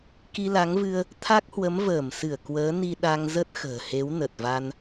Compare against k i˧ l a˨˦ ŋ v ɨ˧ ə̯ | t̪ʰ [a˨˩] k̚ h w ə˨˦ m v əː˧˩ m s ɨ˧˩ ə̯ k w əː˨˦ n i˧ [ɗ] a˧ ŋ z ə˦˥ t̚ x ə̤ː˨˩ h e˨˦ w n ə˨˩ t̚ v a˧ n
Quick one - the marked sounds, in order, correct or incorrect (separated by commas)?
incorrect, correct